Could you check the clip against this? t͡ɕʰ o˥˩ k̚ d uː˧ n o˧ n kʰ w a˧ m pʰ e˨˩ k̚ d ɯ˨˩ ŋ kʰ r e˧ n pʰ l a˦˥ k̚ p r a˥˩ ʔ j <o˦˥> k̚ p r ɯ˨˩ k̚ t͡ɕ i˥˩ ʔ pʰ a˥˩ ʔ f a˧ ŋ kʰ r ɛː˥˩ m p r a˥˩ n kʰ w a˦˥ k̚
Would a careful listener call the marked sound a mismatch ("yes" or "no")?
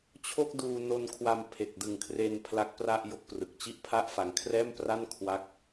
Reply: no